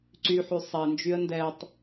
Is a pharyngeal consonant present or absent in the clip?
present